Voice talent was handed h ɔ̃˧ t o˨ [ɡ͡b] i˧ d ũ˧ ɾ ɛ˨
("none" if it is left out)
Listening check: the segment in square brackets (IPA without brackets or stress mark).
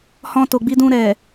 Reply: ɡ͡b